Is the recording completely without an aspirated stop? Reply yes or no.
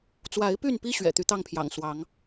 no